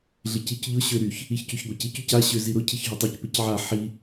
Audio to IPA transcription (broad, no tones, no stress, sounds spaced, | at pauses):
ɮ ɪ c i c ʎ ʊ ɕ ø ɾ y ç | i ç c y ç ɡʷ a c i c y c a ɕ ø z i ɾ ʊ cʰ i ç ɦ ʊ tˤ ø c p ɪ c ʕ a ħ i